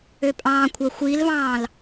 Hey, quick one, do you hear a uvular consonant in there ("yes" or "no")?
no